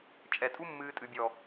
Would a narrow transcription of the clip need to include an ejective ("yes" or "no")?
yes